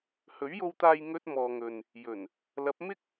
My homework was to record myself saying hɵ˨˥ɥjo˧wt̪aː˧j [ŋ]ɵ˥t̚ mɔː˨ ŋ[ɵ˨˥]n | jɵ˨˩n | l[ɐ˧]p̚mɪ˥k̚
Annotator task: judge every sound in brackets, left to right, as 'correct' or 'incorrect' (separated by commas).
correct, incorrect, incorrect